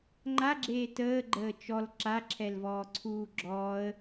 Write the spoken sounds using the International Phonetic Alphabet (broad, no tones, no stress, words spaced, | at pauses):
ŋ͡ǃaɡ͡ǁeː təːɡ͡ǃəː t͡ʃɔl ǁaǁʰɛlvɔːǀʰuː ɡ͡ǁɔːə̯